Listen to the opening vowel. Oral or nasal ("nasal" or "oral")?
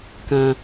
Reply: nasal